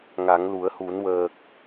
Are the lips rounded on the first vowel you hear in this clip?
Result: no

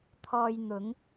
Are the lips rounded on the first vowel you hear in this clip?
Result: yes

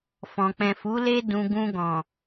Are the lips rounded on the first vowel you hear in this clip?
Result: yes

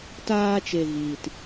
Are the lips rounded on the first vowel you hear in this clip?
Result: no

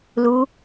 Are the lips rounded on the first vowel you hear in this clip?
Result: yes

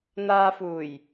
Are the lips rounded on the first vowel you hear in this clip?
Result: no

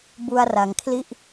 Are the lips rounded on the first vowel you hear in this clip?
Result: yes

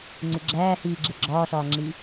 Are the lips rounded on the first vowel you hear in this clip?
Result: yes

